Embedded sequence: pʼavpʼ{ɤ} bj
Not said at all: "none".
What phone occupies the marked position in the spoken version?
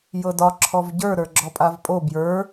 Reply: o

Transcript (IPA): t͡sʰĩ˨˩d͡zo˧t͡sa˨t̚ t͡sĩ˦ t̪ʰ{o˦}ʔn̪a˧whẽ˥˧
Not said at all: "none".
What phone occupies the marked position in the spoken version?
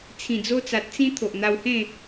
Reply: o˨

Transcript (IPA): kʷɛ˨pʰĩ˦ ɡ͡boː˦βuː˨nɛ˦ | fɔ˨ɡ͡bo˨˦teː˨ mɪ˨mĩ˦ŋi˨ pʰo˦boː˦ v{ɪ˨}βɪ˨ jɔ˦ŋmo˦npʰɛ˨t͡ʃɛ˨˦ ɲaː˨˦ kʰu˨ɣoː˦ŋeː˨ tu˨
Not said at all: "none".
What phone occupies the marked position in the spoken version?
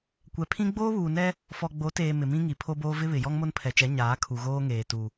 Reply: ɪ˦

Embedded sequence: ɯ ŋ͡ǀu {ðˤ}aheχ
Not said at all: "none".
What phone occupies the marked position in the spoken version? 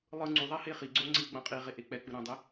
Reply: ðˤ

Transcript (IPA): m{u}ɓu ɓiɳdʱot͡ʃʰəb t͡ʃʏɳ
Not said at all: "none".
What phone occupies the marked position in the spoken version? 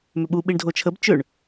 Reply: ʏ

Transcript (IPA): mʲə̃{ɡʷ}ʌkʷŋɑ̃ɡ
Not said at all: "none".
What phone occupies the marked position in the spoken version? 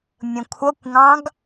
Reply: kʷʰ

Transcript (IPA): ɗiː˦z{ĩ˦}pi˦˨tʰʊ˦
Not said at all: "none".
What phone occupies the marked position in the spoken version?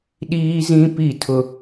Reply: ĩ˦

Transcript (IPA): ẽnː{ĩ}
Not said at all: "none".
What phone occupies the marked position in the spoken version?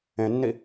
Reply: i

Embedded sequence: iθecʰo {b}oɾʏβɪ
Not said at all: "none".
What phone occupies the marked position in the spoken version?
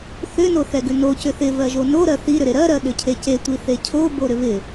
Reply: b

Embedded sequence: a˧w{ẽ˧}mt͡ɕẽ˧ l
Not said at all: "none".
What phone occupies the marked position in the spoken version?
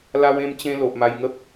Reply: ẽ˧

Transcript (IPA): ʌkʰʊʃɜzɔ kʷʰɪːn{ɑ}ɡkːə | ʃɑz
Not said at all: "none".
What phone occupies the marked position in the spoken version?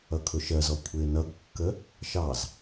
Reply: ʌ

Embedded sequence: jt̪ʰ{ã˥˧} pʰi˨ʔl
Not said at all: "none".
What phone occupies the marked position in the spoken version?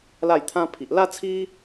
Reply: ã˦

